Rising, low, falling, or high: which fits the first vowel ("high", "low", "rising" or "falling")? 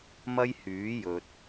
high